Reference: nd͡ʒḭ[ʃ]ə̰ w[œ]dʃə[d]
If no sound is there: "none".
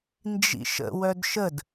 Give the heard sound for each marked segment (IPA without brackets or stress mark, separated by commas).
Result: ʃ, œ, d